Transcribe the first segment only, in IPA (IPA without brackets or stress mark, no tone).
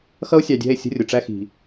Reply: x